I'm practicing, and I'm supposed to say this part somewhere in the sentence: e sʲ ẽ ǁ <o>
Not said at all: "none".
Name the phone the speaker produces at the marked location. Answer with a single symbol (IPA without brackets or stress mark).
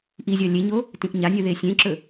ɵ